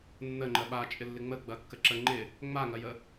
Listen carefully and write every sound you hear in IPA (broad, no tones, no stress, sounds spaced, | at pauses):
nː ə ŋ͡ǃ ɜ ɓ a t͡ʃʼ ɪ lː ɪ ŋ͡m ə ɡ͡b ɐ kː ə ǁ ə ŋ͡ǃ ɪ | ŋ͡m a ŋ ɐ j ə